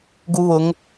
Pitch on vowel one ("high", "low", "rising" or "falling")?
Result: high